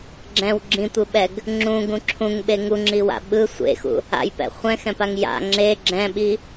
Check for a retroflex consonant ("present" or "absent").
absent